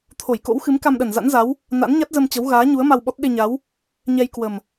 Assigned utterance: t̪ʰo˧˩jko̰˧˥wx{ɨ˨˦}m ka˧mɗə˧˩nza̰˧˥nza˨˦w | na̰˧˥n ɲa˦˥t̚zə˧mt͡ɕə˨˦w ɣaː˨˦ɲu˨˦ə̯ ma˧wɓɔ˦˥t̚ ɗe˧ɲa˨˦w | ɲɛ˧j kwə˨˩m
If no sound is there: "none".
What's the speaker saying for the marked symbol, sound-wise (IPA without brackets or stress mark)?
ɨ˨˦